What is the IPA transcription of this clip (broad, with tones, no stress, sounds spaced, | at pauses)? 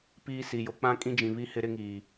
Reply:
p iː˦ s i˨ j o˨ k͡p ã˦ kʼ ĩ˦ d͡ʒ ĩ˨ β i˦ h ɪ˦ ɾ ɪ˦ ŋ iː˨